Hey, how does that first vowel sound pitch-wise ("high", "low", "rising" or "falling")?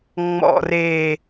low